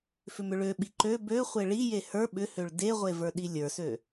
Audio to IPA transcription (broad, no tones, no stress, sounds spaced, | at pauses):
f ʏ m ʏ ɭ ø ɓ i ǃ ø b ø χʷ e ɭ i j e h ə˞ ɓ ʏ h ø ɭ d e ʁʷ e v ə˞ ɗ i lʲ ə˞ s ø